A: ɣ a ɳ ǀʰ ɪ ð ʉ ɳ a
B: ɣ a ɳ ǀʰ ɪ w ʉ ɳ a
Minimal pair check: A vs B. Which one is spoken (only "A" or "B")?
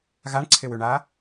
B